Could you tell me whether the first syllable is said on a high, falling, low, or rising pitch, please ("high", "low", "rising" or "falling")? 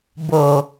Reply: low